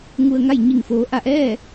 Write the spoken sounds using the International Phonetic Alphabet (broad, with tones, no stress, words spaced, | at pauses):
ŋu˧ə̯ŋa˥˨j ɲi˧˩ŋ foː˩˧ʔa˧˩ʔɛː˥˨